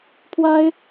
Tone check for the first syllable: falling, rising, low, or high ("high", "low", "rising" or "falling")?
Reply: high